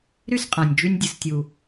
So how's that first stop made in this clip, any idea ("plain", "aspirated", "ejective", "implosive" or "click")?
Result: ejective